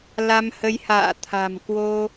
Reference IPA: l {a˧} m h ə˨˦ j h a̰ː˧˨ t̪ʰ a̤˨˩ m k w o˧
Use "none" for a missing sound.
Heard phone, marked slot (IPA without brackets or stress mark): a˧